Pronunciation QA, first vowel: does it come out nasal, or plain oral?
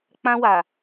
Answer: nasal